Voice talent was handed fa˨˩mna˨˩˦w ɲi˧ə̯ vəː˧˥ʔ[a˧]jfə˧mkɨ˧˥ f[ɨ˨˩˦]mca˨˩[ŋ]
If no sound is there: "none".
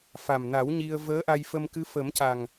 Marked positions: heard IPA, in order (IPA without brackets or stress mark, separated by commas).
a˧, ə˨˩˦, ŋ